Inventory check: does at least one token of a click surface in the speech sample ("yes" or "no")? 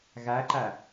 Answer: yes